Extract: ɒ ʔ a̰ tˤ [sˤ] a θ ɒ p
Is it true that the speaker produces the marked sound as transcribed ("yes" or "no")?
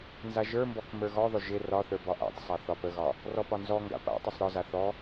yes